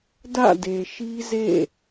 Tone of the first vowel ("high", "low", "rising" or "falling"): falling